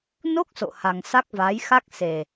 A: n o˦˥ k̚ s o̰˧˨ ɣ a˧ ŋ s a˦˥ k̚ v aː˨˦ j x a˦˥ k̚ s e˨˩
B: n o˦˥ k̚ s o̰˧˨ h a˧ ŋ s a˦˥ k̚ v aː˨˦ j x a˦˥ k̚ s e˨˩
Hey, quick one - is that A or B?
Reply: B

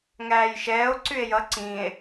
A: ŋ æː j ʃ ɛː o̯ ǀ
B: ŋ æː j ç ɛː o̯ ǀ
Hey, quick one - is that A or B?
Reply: A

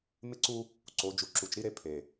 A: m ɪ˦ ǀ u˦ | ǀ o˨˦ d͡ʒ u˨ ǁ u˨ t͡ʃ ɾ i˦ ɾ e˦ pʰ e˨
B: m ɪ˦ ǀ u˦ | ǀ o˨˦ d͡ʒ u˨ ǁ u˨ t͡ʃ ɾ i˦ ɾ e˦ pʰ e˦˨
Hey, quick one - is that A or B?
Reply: A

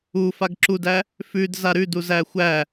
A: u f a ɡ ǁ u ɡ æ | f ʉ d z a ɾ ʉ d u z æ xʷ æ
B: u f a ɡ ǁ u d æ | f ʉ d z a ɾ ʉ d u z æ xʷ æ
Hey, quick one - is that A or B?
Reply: B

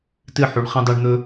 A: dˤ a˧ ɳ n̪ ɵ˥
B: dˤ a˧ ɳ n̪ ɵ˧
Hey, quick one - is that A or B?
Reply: B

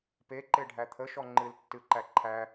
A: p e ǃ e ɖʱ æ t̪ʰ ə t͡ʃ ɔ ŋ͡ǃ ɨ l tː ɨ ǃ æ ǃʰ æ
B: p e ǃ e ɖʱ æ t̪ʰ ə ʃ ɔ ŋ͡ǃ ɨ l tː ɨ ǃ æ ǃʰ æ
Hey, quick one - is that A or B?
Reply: B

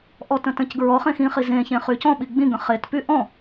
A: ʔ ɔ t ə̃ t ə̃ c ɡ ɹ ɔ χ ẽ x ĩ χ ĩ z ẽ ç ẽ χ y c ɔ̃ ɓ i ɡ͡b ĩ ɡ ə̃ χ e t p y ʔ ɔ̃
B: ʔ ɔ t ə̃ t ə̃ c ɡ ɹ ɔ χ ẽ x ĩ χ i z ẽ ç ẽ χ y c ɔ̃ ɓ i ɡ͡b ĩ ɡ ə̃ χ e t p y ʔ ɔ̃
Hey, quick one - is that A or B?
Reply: B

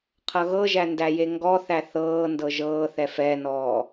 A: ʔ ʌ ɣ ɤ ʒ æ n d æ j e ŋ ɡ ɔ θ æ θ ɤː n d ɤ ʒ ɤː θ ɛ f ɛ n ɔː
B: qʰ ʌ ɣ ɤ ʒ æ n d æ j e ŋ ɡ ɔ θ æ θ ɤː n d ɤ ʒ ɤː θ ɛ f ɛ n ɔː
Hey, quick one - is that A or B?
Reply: B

